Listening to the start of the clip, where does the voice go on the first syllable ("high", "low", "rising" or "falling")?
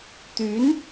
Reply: rising